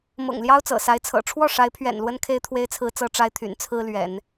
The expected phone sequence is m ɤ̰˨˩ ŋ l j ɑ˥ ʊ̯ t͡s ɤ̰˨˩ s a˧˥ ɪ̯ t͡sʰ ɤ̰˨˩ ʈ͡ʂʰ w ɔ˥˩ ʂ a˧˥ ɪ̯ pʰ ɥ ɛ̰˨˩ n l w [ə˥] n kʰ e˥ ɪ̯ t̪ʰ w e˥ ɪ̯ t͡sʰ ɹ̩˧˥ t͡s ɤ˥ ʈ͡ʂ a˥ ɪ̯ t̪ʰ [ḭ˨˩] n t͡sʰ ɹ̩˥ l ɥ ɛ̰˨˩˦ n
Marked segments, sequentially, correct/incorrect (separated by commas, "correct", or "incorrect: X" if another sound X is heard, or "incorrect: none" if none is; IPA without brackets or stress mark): correct, incorrect: y̰˨˩